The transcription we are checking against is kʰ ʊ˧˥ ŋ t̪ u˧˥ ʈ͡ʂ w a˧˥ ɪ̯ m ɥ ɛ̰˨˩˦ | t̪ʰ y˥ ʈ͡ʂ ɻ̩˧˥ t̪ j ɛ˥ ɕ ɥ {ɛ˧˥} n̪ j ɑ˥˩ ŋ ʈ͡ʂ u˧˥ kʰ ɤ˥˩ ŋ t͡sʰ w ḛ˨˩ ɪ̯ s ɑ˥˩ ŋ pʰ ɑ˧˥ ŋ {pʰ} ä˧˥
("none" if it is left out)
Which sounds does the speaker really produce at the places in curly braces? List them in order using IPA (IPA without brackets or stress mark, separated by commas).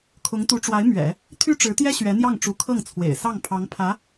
ɛ˧˥, pʰ